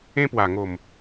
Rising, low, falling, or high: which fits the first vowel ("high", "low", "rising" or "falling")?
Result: high